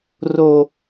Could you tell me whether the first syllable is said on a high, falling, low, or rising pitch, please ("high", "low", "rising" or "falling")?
low